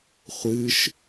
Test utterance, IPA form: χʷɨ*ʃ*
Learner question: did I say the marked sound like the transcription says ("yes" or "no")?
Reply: yes